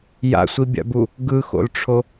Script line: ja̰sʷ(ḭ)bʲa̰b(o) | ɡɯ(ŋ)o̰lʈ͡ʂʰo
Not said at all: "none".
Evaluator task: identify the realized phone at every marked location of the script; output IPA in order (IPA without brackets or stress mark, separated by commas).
i, u, x